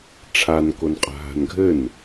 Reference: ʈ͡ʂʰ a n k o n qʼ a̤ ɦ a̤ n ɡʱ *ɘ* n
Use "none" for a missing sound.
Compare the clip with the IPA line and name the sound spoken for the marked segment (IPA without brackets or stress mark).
ɘ